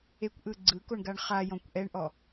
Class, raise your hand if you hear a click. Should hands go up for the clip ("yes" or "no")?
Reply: yes